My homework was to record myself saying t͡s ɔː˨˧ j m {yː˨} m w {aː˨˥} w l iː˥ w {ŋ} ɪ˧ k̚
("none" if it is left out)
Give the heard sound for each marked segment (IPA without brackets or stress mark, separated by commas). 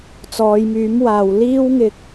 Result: yː˨˥, aː˨, ŋ